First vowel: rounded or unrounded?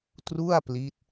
rounded